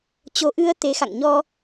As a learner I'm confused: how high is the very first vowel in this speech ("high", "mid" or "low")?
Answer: mid